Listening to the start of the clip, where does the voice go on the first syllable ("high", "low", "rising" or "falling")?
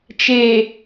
low